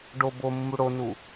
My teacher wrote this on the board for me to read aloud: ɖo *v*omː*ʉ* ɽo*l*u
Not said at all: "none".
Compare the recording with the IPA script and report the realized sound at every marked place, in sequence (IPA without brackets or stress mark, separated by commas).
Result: b, u, n